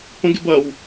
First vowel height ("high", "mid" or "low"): mid